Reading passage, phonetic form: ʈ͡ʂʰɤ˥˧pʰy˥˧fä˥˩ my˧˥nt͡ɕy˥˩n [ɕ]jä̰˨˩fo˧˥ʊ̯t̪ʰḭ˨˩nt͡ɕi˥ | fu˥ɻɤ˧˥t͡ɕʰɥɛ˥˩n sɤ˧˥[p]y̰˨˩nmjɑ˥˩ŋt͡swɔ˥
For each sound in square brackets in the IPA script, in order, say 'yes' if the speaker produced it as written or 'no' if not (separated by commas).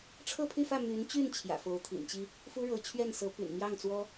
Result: no, yes